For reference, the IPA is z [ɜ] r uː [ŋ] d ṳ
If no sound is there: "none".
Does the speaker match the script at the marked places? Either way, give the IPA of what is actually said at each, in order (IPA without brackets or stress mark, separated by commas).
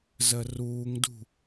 ɜ, ŋ